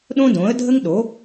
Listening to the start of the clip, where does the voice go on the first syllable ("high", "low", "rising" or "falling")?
high